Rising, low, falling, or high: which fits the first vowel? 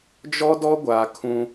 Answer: high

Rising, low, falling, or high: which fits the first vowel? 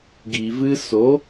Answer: low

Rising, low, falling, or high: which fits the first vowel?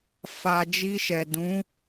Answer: low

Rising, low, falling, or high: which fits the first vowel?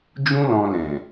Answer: high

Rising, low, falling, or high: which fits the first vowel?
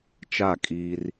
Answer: falling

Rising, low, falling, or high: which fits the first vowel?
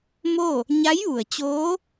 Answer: falling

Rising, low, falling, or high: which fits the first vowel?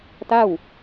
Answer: falling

